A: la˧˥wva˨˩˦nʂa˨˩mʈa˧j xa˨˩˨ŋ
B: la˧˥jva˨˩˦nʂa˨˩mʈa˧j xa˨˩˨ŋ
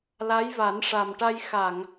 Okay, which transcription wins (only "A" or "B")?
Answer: B